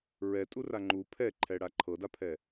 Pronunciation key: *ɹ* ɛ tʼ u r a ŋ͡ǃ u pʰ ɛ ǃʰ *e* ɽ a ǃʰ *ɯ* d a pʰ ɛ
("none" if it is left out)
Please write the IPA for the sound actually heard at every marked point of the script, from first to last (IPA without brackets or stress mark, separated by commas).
ɹ, ɛ, ɤ